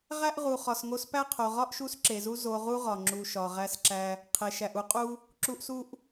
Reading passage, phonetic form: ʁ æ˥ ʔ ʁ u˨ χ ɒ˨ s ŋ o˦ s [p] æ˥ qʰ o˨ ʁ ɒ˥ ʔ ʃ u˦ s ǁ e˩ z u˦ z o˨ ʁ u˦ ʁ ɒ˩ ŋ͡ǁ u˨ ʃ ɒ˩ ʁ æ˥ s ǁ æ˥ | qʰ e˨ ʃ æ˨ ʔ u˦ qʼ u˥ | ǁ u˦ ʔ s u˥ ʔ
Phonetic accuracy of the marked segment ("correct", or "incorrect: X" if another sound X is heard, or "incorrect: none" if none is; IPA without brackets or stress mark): correct